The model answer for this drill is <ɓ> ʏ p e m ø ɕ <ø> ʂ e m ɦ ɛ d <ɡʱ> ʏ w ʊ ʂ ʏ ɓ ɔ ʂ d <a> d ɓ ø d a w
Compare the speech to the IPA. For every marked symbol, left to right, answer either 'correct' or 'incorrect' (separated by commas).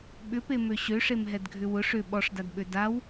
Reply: correct, correct, correct, correct